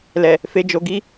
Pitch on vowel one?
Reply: low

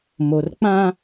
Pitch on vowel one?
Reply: low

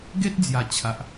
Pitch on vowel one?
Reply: high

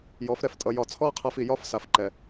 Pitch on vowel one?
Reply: rising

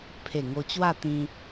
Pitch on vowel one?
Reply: low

